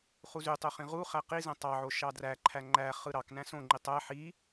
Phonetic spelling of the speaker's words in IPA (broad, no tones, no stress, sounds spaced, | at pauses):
χ u z y tˤ ø χ ĩ ʁ u χ æ q i z ẽ tˤ ɑ ʕ o ʃ ɑ d r æ ǃʰ æ ŋ͡ǃ æ χ ɯ ɾ ɑ k n æ̃ s õ ŋ͡ǃ i tˤ æ ħ i